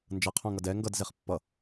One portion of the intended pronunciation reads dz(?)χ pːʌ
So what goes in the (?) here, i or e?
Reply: e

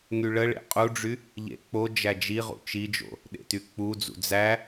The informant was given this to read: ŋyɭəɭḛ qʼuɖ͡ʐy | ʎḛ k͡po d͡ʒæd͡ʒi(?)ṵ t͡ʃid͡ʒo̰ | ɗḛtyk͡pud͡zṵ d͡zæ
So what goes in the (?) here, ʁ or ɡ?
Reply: ʁ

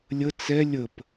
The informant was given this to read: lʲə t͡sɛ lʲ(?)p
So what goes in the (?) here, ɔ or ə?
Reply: ə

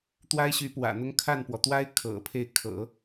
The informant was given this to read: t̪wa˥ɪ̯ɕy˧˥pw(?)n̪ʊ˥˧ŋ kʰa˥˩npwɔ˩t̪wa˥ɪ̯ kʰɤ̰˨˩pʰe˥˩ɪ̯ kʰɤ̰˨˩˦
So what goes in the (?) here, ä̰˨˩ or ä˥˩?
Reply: ä̰˨˩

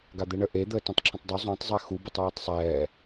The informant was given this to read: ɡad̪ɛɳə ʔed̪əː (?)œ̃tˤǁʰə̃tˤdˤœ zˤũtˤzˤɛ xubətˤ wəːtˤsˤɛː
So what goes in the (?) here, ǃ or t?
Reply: t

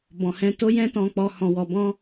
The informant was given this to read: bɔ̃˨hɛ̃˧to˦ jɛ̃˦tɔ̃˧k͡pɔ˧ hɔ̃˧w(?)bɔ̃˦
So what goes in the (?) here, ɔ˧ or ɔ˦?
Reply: ɔ˧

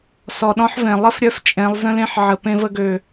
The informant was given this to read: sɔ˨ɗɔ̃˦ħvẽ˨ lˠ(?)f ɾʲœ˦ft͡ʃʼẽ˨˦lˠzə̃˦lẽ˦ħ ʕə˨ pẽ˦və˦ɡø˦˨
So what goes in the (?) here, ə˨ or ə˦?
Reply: ə˦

